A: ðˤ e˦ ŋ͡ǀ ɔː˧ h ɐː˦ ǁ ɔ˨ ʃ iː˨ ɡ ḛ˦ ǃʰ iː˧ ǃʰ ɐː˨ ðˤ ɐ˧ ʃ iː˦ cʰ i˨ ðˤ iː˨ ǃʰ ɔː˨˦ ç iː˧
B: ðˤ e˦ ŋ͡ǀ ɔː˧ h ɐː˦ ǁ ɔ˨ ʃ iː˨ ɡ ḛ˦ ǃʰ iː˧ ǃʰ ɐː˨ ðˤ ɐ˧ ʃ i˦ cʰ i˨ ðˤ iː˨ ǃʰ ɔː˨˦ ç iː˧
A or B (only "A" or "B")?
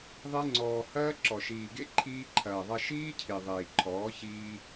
A